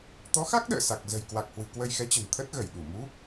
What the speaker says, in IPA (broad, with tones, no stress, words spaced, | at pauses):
t̪ɔ˨˦xa˦˥k̚ ɗə̰ː˧˨sa˨˩k̚ zə̤˨˩jkwa˨˩k̚hwɨ̤˨˩ kwə˧jxɛ˨˦t͡ɕə̤˨˩nt̪ʰə˦˥t̚ ɣə˧˩jɗu˧˩ mu˨˦